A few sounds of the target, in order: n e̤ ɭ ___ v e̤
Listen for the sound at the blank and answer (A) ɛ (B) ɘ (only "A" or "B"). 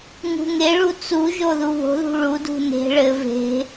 B